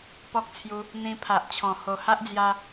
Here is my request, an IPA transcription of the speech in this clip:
p ɔ˦ k̚ t͡sʰ j u˧ | n̪ ĩ˧ pʰ a˨ ʔ t͡ɕʰ ɔ̃˨˩ h o˨˩ h a˦ ʔ d͡z j a˧

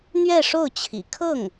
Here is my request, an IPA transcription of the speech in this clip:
n̪ ɥ ɛ˥˧ ʂ o˥˩ ʊ̯ t͡ɕʰ ḭ˨˩ kʰ ɤ˥˩ ŋ

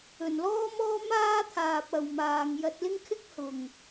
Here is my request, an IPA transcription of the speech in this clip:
ɵ˨˩ n l ɔː˥ m ɔː˥ m aː˥ t̪ʰ aː˨ p̚ ɐ˨ w m aː˨ ŋ j ɐ˧ t̚ l ɪ˥ ŋ kʰ ɪ˥ k̚ h ʊ˨˩ ŋ

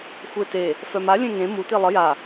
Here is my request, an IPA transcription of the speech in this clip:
xʷ e t e | f œ m a lʲ ẽ ŋ ẽ m u t i lˠ ə j a

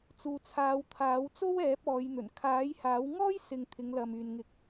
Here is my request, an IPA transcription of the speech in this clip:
t͡s uː˨ t͡sʰ aː˨˧ w t̪ʰ aː˨˥ w t͡s o˥ w ɛː˨˥ p̚ ɔː˨˧ j n̪ ɵ˨˩ n kʰ aː˨˥ j h aː˨˥ w ŋ ɔː˥ j s ɪ˨ ŋ t̪ʰ ɪ˨˧ ŋ l ɐ˨ m yː˨ n ŋ ɪ˧ k̚

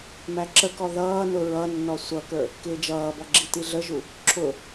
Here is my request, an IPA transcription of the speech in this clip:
m æ ǁ ə k ɔ ð ʌː n ʊ ɹ ʌ nː ɔ sʷ ʌ k ə˞ | k ɪː d͡ʒ ʌː b ɔ ɡ͡ǁ i t i ɮ ə ʒ u | ǁʰ ʊ

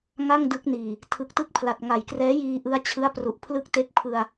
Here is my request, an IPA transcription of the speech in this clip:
ŋ a˥˩ ŋ d ɯ˦˥ k̚ n iː˨˩ | tʰ ɯ˨˩ k̚ t ɯ˥˩ k̚ pʰ l a˨˩ t̚ ŋ a˨˩ j k r ɛː˦˥ j iː˧ ʔ ɯ˦˥ a̯ t͡ɕʰ ɯ˦˥ a̯ p r u˨˩ ʔ pʰ l ɯ˦˥ k̚ t e˦˥ k̚ pʰ ɯ˧ a̯

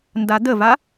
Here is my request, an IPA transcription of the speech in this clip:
n d a d̪ ə v a

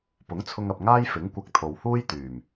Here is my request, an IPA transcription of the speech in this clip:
p ʊ˨˥ ŋ t͡sʰ ʊ˧ ŋ ɐ˨ p̚ ŋ aː˥ j f ɪ˨˥ ŋ kʷ ɐ˧ k̚ t̪ʰ o˨ w h uː˥ j t̪ yː˨˩ m

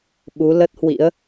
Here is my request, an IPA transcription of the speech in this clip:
ɓ u˨˦ l ə˦˥ t̚ h w ḭ˧˥ ə̯

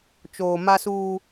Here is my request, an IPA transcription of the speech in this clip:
t͡ʃ oː˨ m a˦ s uː˦

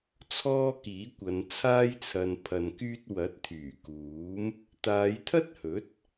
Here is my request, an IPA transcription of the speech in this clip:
t͡sʰ ɔː˥ k iː˨˥ kʷ ɐ˨˧ n t͡sʰ aː˥ j t͡sʰ ɐ˧ n pʰ ɐ˧ n k yː˥ t̚ w ɐ˨˥ t̚ t̪ʰ yː˨˩ k uː˨˥ m | t̪ aː˨˧ j t̪ʰ ɐ˥ t̚ h ɵ˨˥ t̚

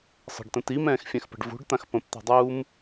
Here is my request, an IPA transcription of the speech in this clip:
sˤ ə̤ ɖ t ə̃ t i m ɛ̃ː x fʲ ɛ̃ x p ə̤ ɖ v ṳ ɖ t̪ ã x p ə̃ p t̪ ɛ̤ dˤ uː m

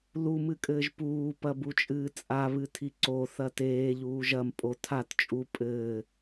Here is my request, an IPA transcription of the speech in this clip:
l u m ɨ kʼ ɘː ʒ p uː p ɐ b u t͡ʃʼ ɨː t͡sʼ a β ɨ tʰ i ǀ o θ ɐ t eː ʎ uː ʒ ɐ m pʼ o tʰ a t t͡ʃʼ u pʼ ɘː

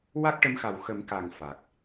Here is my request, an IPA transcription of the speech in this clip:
w a˦˥ k̚ ʈ ə˧˥ m x a˨˩ w x ə˨˩˦ m k a˨˩ ŋ f a˨˩ k̚

